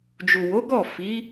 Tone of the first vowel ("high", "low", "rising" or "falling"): low